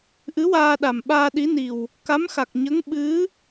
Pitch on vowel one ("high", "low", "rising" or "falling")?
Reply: rising